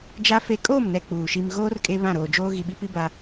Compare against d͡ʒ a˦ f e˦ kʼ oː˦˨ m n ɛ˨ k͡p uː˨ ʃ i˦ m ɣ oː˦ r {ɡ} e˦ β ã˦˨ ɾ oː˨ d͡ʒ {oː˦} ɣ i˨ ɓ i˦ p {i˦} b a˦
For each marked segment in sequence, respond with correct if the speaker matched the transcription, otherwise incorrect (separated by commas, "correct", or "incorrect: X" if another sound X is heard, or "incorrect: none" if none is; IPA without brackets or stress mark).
incorrect: kʼ, correct, correct